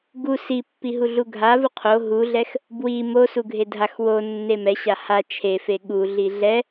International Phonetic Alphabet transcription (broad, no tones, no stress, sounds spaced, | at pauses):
ɡ u s i pː i ɦ u ɮ u ɡʱ a v u qʰ o ɦ u ɮ ɛ x | b w i m o s u ɡʱ e dʱ a x w o nː e m ɛ ɕ a h a t͡ʃʰ e f e ɠ u ɮ i ɮ ɛ